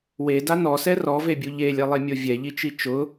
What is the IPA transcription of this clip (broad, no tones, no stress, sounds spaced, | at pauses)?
w e d a n ɔ s ɛ r ɔ v e bʲ u ʎ e lʲ ɛ lˠ e mʲ o vʲ ɛ ʎ i t͡ʃ i t͡ʃ ʊ